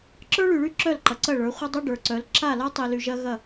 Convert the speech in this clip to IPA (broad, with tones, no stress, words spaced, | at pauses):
ǁə˞˦ɭy˨ɭy˦ ǁœ˦˨lǃɐ˨ǀɐ˦˨ɭə˞˨˦ χʷɐ˦dˤu˦ ɖə˞˨ǀœ˨˦l ǁa˦˨la˦tˤi˨ly˨ ʒɐ˦ɣɐ˦˨